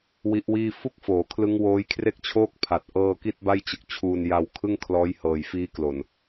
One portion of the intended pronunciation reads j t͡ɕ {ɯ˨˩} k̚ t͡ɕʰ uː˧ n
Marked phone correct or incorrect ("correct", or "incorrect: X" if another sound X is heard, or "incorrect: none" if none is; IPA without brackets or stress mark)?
correct